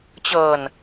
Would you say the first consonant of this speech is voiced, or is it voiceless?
voiceless